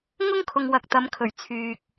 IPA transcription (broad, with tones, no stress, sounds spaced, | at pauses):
ŋ ʊ˥ ŋ kʰ ʊ˨ ŋ w ɐ˨ k̚ t̪ ɐ˨˧ m kʰ ɵ˨˩ ɥ t͡sʰ yː˨ k̚